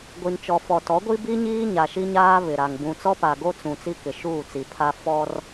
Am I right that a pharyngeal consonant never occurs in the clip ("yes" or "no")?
yes